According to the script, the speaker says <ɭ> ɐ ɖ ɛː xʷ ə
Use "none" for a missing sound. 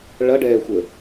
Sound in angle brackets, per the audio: ɭ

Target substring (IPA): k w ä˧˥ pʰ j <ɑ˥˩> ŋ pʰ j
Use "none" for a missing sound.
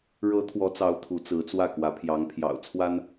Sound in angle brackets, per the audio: ɑ˧˥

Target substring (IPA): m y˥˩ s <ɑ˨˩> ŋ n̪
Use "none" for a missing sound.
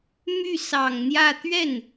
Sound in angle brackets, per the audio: ɑ˨˩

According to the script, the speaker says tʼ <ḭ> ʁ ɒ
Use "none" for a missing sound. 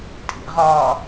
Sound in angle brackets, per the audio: ḭ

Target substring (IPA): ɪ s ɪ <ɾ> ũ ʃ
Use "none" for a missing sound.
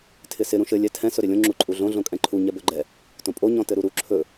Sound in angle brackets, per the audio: ɾ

